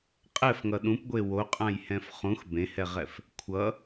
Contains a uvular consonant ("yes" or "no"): yes